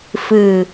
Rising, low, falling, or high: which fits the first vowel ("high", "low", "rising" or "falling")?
low